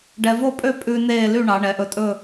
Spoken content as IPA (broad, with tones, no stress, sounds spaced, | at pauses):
ɖ ɛ˧ v o˥˧ pʼ ø˥˧ pʼ ʉ˧ n eː˥˧ l y˥˧ ɳ ɑ˩˧ ɳ ɛ˩˧ ʔ ɵ˧ tʼ ɵ˥˧